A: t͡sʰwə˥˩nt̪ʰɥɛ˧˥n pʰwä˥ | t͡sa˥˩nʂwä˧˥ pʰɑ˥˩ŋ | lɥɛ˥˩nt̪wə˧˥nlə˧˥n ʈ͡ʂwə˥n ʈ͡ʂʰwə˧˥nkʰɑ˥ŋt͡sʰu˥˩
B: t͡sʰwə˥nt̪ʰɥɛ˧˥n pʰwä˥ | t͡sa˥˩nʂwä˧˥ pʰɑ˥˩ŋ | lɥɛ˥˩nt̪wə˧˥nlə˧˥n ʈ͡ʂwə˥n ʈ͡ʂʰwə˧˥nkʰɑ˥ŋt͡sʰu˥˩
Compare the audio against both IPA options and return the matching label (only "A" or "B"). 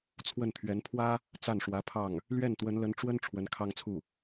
A